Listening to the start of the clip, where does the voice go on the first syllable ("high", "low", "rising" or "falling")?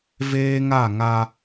high